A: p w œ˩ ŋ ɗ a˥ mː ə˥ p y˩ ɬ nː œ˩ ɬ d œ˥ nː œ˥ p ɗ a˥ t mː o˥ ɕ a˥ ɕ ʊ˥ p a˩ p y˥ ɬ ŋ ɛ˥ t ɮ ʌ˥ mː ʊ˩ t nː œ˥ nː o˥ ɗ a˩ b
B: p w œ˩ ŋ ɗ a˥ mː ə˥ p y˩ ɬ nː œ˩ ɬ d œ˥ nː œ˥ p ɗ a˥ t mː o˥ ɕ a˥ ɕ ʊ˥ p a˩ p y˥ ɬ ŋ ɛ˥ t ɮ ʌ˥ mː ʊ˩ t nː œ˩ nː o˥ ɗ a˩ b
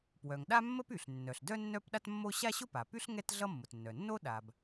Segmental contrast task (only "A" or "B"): B